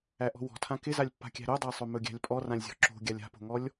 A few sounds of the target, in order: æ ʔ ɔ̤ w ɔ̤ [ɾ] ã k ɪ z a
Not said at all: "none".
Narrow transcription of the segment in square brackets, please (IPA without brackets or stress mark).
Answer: tʰ